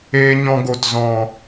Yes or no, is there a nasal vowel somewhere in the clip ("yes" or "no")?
yes